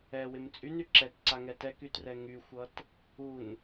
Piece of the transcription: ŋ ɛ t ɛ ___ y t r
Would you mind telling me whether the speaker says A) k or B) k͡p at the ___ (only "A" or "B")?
A